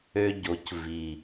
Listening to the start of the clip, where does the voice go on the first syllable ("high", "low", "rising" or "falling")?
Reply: high